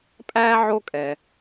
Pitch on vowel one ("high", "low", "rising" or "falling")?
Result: high